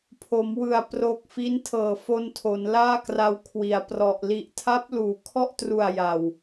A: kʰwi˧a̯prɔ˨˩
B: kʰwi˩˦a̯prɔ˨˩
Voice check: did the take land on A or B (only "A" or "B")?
B